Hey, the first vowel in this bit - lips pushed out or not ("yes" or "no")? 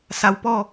no